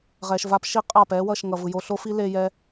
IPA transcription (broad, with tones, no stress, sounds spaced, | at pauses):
ʁ ɛː˧ ʃ v a˦ p ʃ i˦ qʼ a˦˨ p ɛː˦ w ʌ˦˨ ʃ ŋ ʌ˨ v ɯ˨ j o˧ ɬ o˦ f i˦ l e˦ j ɛː˦